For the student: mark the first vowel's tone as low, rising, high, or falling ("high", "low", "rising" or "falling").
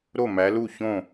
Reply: falling